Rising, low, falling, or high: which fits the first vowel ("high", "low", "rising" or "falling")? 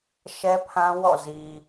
high